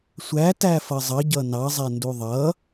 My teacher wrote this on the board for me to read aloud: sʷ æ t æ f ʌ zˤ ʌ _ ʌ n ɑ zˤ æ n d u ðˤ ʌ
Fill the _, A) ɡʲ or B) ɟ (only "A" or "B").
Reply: B